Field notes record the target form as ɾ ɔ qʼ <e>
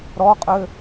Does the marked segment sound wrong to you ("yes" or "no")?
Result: yes